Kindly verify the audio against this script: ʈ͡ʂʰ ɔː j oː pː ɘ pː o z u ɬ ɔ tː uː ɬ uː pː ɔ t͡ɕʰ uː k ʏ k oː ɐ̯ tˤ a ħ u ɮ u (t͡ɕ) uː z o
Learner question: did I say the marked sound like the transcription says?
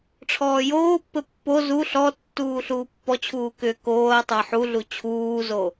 no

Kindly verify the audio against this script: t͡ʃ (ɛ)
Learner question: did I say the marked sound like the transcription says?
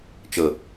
no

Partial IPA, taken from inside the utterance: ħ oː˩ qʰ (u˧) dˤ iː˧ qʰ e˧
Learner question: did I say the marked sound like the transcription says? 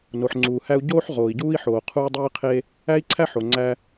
no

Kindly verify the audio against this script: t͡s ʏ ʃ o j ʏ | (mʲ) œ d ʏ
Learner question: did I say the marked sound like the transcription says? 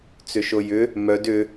no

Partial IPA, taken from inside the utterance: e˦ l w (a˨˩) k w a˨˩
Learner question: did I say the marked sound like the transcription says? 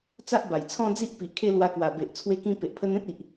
no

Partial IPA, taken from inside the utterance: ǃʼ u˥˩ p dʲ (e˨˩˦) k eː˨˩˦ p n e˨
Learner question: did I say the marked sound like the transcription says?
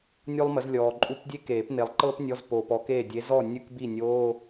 no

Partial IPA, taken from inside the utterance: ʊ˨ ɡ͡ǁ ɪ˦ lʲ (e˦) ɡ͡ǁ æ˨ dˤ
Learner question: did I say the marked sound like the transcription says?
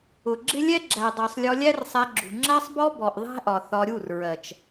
no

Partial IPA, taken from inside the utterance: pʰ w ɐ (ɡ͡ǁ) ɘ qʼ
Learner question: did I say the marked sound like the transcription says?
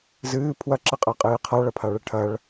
no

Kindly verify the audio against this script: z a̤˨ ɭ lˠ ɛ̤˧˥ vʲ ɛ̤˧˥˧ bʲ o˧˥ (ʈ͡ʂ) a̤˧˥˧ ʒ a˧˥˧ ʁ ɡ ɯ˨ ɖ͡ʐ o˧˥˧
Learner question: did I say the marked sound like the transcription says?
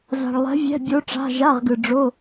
yes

